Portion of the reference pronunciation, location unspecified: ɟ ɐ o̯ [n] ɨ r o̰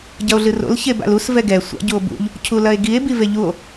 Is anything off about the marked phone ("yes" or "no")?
yes